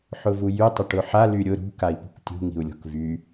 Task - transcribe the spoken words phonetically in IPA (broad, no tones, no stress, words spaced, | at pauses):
ħʊvujy tˤɪʈʊħa lyɾʲʊ ɾṳ kai̯pṳktʲṳ ŋi̤u̯lʲɔ̤kvy